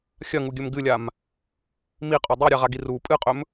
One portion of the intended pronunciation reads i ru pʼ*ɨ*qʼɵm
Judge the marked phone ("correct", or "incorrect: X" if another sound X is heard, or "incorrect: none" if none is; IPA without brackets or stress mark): correct